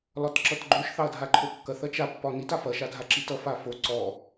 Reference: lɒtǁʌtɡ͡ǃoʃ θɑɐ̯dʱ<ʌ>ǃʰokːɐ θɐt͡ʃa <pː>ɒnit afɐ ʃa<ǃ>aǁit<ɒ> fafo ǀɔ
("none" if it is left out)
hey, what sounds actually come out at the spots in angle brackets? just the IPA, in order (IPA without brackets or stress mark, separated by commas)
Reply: a, pː, dʱ, ʌ